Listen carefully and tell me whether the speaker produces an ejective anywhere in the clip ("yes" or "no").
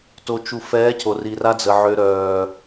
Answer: no